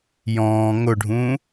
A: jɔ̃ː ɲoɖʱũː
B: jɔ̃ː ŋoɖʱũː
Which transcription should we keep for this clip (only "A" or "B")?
B